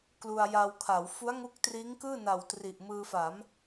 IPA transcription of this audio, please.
k l u˧ a̯ j a˧ w kʰ a˩˦ w f u˦˥ a̯ ŋ u˦˥ k̚ t r iː˦˥ ŋ k ɯː˥˩ n a˨˩ w t r i˨˩ ʔ m ɯː˧ f a˩˦ m

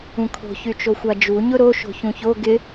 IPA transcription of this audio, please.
ũ kʰ o̤ ç y t͡ʃ o xʷ a d͡ʒ u ɲ ʊ ɾ o ʃ o̤ ç ũ ç o ɡ ɪ

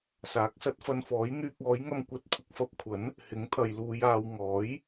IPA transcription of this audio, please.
s aː˨˥ k̚ s ɐ˨˥ t̚ f ɐ˧ n f ɔː˨˥ j n̪ yː˧ k̚ ɔː˨˥ j ŋ ɐ˧ m kʷ ɐ˨˥ t̚ kʷʰ ɪ˨ k̚ f ɐ˧ p̚ kʷʰ ɐ˨˥ n | h ɪ˨˥ ŋ t̪ʰ ɐ˨ j l uː˨˧ j aː˨ w ŋ ɔː˨˥ j

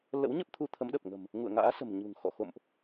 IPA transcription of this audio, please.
l ə̰˧˥ w ɲ ə˦˥ p̚ t̪ʰ u˧ t̪ʰ ə˨˦ m ɗ ə˨˩ p̚ ŋ ə̤˨˩ m | ŋ ṵ˧˨ ə̯ ŋ a̰ː˧˥ s ə̤˨˩ m ɲ ṳ˨˩ ŋ x ɔ̰˧˨ x o̰˧˨ m ʔ

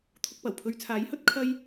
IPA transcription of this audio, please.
t̪ʰ ʊ˧ k̚ p ɐ˨˩ w pʰ ɵ˧ ɥ t͡sʰ aː˨˥ j h ɵ˨˥ t̚ kʰ ɐ˥ j

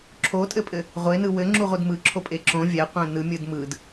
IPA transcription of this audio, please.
ǁʰ o tʼ ɘ pʼ ɘ | ʁʷ e n ɯ w ɘ ŋ͡ǁ u ʁʷ ɯ d m ɯ ǁʰ o pʼ e ǁ õ vʲ ɛ qʷ ɛ̃ n ɯ mʲ ɯ d m ɯ d

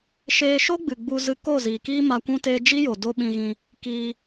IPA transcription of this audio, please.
ʃ eː˧ ʃ o˦ ɡ͡b ɨ˨ ɡ͡b u˧ z ɨ˧ k o˦˨ z iː˨ k iː˦ m a˧ kʷ ũ˦ t eː˦ d͡ʒ i˦ j o˨ d o˦ ɓ ĩ˧ ɣ ĩ˧ | k iː˧

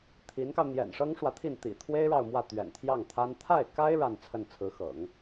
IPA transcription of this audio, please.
t̪ʰ i˧˥ n k ɑ˧ ʊ̯ n̪ j ɛ̰˨˩ n ʂ ɤ˥ ŋ ʂ w ä˨ t̪ʰ i˥˩ n t̪ ḭ˨˩ t̪ʰ w e˥ ɪ̯ ɻ ɑ˥˧ ʊ̯ m w ä˥˩ t̪ ɥ ɛ̰˨˩ n t̪ʰ j ɑ˥˩ ŋ t̪ʰ a˥ n t̪ʰ a˥˩ ɪ̯ k a˥ ɪ̯ ɻ a˥˧ n t͡sʰ ə˥˩ n t͡sʰ ɹ̩˧˥ x ɤ̰˨˩˦ ŋ

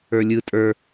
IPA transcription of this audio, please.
ə˞ lʲ ɯ tʼ ə˞

